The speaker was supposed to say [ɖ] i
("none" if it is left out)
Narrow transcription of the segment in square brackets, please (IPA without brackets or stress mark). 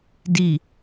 d